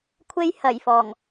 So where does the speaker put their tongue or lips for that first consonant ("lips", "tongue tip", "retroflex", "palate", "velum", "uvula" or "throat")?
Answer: velum